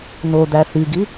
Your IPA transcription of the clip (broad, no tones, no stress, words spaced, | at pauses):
nod̪æ θiɡi